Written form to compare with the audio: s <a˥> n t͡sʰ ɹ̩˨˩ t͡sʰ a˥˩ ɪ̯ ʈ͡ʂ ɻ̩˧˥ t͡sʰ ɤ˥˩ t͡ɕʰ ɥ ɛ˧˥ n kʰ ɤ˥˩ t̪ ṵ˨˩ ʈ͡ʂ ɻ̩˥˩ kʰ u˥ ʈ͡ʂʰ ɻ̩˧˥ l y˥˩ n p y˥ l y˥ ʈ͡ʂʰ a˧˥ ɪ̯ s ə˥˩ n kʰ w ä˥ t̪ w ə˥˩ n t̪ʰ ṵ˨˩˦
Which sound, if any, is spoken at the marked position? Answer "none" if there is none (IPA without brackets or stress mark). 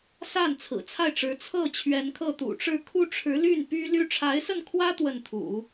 a˥˩